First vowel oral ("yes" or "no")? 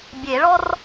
yes